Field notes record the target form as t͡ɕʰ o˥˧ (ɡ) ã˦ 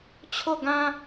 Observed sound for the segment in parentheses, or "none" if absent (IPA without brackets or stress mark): ɡ